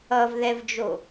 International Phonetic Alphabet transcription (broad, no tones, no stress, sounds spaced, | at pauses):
ʌ v ð ɛ v d͡ʒ o